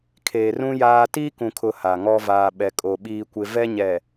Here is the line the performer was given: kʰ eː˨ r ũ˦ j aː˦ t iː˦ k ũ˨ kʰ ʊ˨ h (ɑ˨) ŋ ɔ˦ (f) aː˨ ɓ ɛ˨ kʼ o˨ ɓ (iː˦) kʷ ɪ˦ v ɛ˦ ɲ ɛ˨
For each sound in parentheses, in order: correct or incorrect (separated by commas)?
incorrect, incorrect, correct